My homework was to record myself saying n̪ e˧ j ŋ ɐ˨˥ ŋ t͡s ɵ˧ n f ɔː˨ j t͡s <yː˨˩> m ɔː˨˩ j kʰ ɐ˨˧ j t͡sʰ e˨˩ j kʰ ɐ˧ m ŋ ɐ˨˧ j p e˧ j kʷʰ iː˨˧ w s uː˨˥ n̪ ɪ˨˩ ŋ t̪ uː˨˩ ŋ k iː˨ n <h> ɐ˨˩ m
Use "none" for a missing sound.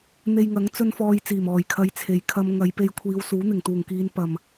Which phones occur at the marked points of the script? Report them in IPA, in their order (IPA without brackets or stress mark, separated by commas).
iː˨˩, p